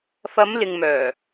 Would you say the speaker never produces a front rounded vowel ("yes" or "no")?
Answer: no